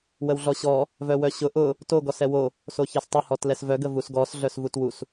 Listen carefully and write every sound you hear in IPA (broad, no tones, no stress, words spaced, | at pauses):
wəwɮɔɕɔ | vœwœɕʊ ʔʊ | to ɡɔsɛwo | soçɛstˤə hɔtlɛsvœ ɡəvusɡɔs ɮœsvutwus